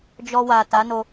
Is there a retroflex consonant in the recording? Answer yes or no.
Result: no